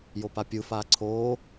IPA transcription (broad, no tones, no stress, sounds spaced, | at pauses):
j o p a pʲ ɯ f aː ǀʰ oː